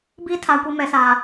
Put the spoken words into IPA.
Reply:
b i˦˨ tʰ a˨ kʷ i˨ m ɛ˨ s a˨

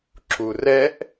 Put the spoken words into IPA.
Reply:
ǁ u r ɛ ʔ

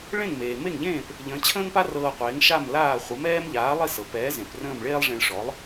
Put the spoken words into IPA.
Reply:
ɭ ẽ˥˩ ŋ m eː˩ m e˥˩ ŋ ʎ ẽː˥˩ p | ʎ ə̃ː˩˥ t͡ɕʰ ə̃ː˥ ŋ p a˥ r ɤː˧ qʷ eː˩˥ ŋ ʃ a˥˩ m l aː˥˩ χʷ ə˩˥ m ɛː˥ m ʎ aː˩˥ lˠ i˥˩ s ɤ˩ p ɛː˩˥ z ẽ˩ p r ə̃ː˥˩ m ɭ eː˥ lˠ ʐ ẽ˧ ɭ ʂ ɔ˩˥ lˠ

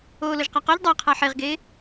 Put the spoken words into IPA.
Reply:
oː l o ʒ q a q ɔ ʎ dˤ a qʰ a ħ e ʁ ɡ eː

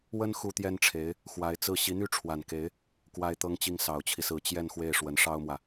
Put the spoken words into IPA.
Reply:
w ə˥ n x u˥ t̪ j ɛ˥ n ʈ͡ʂʰ e˧˥ ɪ̯ | x w a˧˥ ɪ̯ t͡s ɹ̩˥˩ ɕ i˧˥ n̪ y˥ ʈ͡ʂʰ w a˨˩ n k e˧˥ ɪ̯ | k w a˥ ɪ̯ t̪ ɤ˥ ŋ t͡ɕ i˥˩ ŋ s ɑ˨˩ ʊ̯ t͡ɕʰ i˦ s ɹ̩˧˥ t͡ɕ j ɛ˥˧ n x w e˥˩ ɪ̯ ʂ w ə˧˥ n ʂ ɑ˥ ʊ̯ m w ä˨

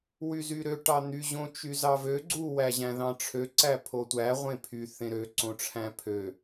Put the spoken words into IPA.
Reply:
w y z y ɾ ø ʈ ɑ n̪ y ʑ õ t͡ʃ y z ɑ v ø ɡ͡ǀ u w æ ʑ æ̃ ð ɑ̃ ʈ͡ʂʰ ø ǀ æ pʰ o tʷ æ ʁʷ ẽ pʰ y θ ẽ ɾ ø ǀ õ ʈ͡ʂʰ æ̃ pʰ ø

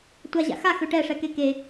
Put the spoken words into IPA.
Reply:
tʷ a ʑ a̰ x a x ø ʈ ɛ ʂ ɛ k e k e

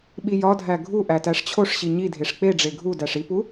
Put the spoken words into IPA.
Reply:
ɓ i j ɒ dʱ æ ɡʱ u ʔ æ t æ ʂ t͡ɕʰ o ʂ ɕ i ɲ i dʱ e ʂ k͡p e ɖ͡ʐ e ɡʱ u d æ ʂ i p u

